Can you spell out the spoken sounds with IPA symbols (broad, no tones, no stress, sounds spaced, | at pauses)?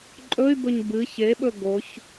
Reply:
ǃʼ ɵ y̯ b ɵ ɲ b ɨ ç e ɓ ɵ ɡ o ç